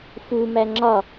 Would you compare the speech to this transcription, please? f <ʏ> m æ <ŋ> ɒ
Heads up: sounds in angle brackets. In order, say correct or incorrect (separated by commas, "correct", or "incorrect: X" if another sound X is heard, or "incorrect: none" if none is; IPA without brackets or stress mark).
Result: incorrect: u, incorrect: ŋ͡ǁ